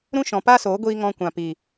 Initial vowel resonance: nasal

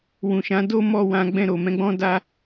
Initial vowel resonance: nasal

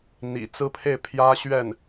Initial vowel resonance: oral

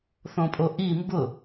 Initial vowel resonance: nasal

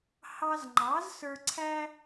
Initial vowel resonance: oral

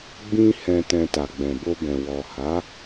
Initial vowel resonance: nasal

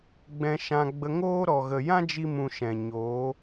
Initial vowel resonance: nasal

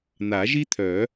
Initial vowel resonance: oral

